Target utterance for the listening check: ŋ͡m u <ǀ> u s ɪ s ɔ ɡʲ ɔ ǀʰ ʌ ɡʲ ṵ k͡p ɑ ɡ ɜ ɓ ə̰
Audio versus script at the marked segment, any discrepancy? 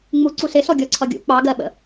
no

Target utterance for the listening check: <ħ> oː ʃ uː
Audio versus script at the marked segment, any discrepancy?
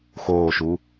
yes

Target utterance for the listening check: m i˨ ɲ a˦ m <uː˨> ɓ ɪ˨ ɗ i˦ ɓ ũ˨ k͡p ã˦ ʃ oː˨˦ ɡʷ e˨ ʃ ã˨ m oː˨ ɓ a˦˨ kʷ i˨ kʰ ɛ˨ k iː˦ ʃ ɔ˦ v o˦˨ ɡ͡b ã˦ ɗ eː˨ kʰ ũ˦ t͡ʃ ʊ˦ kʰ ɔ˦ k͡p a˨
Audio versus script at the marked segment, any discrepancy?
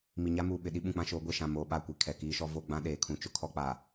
no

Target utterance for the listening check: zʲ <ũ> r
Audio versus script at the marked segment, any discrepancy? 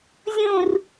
no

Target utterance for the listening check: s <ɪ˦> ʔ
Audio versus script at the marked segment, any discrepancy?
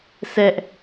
yes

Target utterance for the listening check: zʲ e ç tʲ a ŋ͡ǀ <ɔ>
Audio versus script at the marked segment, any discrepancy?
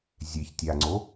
yes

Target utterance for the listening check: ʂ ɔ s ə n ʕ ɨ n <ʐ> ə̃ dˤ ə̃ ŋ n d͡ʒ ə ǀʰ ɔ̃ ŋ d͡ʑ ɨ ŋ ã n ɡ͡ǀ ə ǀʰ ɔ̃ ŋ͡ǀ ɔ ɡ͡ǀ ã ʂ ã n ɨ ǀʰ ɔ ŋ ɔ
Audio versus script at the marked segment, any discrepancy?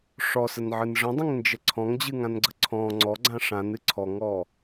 no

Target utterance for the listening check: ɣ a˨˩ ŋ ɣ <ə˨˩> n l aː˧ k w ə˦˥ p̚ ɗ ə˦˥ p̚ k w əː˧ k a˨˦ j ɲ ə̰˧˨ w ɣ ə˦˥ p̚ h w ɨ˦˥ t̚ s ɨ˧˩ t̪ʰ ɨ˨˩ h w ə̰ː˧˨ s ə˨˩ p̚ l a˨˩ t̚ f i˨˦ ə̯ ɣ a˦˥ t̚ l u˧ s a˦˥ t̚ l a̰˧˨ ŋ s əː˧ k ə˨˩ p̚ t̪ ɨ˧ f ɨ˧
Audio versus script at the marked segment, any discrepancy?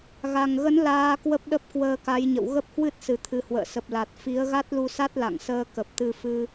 yes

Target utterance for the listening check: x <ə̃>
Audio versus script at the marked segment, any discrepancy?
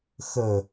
yes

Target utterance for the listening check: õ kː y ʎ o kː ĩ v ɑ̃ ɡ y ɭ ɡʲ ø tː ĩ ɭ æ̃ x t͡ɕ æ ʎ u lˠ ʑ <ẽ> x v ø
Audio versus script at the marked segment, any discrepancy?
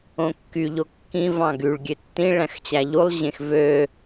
no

